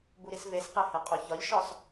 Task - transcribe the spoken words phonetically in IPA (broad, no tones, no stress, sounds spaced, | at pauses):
b u ɾ i s v e s q e h e qʼ o ç ɒ ʎ ʃ ɒ s